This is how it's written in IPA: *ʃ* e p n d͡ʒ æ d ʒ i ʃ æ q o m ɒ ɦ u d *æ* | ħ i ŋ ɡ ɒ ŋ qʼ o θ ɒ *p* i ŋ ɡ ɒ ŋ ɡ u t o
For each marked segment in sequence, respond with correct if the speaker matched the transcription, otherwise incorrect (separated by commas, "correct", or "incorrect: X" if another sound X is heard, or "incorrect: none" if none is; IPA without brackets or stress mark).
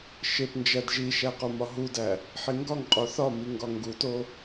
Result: correct, correct, incorrect: m